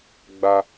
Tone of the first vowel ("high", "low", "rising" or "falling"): high